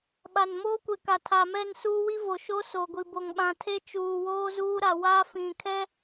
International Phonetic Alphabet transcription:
ɓ a˨ n m oː˦ kʷ e˨ k a˨ tʰ a˨ m ɛ˦˨ n s uː˦ w i˦ v o˨ ʃ o˦ s o˨ ɡʷ i˨ b o˨ ŋ ɓ ã˨ tʰ e˦ t͡ʃ uː˨ w oː˦ z uː˦ ɾ a˨ w a˦ f ĩ˨ kʰ ɛ˦

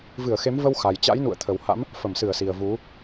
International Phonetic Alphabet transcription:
v ɨ˧˩ ə̯ x e˨˦ m v ə˧ w x a˨˩ j t͡ɕ a̰˧˥ j n ṵ˧˨ ə̯ t̪ʰ ə˨˩ w h a̰˧˥ m | f ə˧˩ m s ɨ˧˩ ə̯ s i˨˩ ə̯ v u˨˦

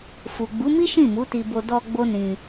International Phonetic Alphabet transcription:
f u˨ ɡ͡b u˨˦ m i˦ ʃ ĩ˦˨ m u˨˦ t i˧ b o˧ d ɔ˧ ɡ͡b o˦ n ĩ˧

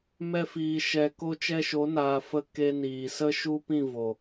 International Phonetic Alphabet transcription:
m ɛ˧ f iː˨ ʃ ɛ˨ k o˧ t͡ʃ ɛ˧ ʃ o˨˦ n aː˨ f ə˨ k e˧ n iː˨ s ə˦ ʃ u˦ p ĩ˦˨ v o˨

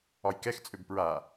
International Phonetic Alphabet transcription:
ɒ j k ɛ x t͡sʼ ø b p ɹ a

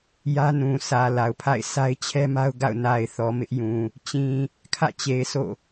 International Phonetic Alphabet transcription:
j ä˦ n ũ˨ sʰ ä˨ l a˨ ʊ̯ pʰ a̰˦˨ ɪ̯ sʰ a˦ ɪ̯ t͡ɕʰ ɛ˦ m a˦ ʊ̯ ɡ a̰˦˨ ʊ̯ n a˨ ɪ̯ θ ɔ˨ m ɪ˦ ʔ j ũ˨ | t͡ɕ ĩ˨ | kʰ ä̰˦˨ t͡ɕ e˨ ɪ̯ sʰ o̰˦˨

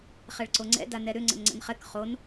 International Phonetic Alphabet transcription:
χ ɛ ɭ ǀ o ŋ͡ǀ ɛ̰ d a n ɛ ɾ ʏ ŋ͡ǀ ə̰ n ŋ͡ǀ ə̰ n χ ɛ k χ o n

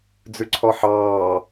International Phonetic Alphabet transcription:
d͡z ʉ ǀʰ ɔ ħ ɑː

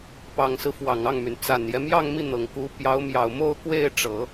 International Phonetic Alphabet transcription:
p ɑ˨˩ ŋ s ɹ̩˦ f w ɑ˨˩ ŋ ɑ˥˩ ŋ m y˩ n t͡s a˨˩ n j ɛ˦ m j ɑ˥˧ ŋ m i˥˩ n̪ ɤ˨˩ ŋ k u˧˥ p j ɑ˧˥ ʊ̯ m j ɑ˨˩ ʊ̯ m o˥˧ ʊ̯ k w e˥˩ ɪ̯ ʈ͡ʂ ɤ˨˩˦

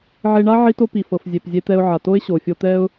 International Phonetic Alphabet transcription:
ʕ e˧ ɳ a˥ ʕ i˥ t o˥ p i˩ f ɤ˩ f zʲ e˩ p zʲ e˧ t̪ ɛ˧ ʊ̯ ʕ a˩ t o˥ ɪ̯ ɕ o˩ fʲ o˧ t̪ ɛ˥ ʊ̯

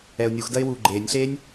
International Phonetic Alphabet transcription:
ɛ ʊ̯ nʲ u x d ɐ ɪ̯ w uː ɡ͡ǃ eː nʲ ɬ eː nʲ

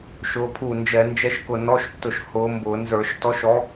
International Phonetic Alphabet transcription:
ʃ ʊː˨˦ pʰ u˧˩ n d͡ʒ ɛ˧˩˧ n d͡ʒ ɛ˧˥˧ ʃ k ʊ˧˩ n ɔ˧˥˧ ʃ tː ʊ˧˩ ʃ h ʊː˨˦ m b ʊː˧˩˧ n z ə˞˧˩˧ ʃ t ɔ˨˦ ʃ ɔ˨˦

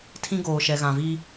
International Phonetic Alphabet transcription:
tʰ ĩ˦ ɡ oː˨ ʃ ɛ˨ ɣ ã˨ v i˦

